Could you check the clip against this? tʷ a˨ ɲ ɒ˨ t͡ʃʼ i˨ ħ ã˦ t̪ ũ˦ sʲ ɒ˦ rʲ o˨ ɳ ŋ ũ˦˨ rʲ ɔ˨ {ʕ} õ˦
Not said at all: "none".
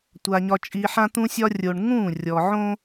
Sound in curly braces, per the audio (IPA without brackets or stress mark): ʕ